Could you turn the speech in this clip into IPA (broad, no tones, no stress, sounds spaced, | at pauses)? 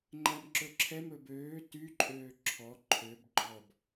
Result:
ŋ͡ǃ æ m ǁ ɵ ǁʰ ɛ m ɵ b øː t y ǃʼ øː ǁʰ ɔ ǃʰ ø b ɡ͡ǃ ɔ b